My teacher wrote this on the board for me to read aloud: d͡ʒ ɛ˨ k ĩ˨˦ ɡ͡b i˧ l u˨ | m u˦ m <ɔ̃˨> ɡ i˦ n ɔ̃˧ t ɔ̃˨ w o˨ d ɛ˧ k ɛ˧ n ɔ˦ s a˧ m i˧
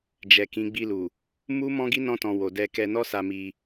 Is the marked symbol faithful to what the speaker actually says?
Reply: no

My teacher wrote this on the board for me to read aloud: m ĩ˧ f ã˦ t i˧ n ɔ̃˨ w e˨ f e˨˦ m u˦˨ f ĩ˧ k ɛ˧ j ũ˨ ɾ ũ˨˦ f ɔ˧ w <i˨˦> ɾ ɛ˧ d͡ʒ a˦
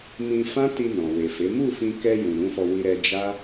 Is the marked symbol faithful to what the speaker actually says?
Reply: no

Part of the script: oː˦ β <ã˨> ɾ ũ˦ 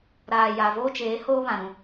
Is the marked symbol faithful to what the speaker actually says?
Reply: yes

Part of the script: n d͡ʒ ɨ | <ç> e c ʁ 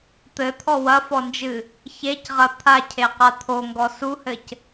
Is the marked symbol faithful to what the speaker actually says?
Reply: yes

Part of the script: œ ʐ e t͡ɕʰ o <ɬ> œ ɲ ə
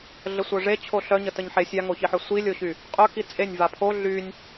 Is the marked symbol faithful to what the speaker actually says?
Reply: yes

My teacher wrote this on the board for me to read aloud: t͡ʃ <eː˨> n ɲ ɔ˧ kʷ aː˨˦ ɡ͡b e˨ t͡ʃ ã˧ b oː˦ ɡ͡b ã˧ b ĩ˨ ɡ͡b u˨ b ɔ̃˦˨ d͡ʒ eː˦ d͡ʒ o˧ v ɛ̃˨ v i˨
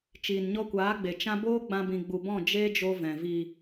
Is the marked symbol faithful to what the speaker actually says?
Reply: no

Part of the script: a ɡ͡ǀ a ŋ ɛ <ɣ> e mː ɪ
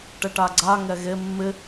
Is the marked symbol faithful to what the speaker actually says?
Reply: yes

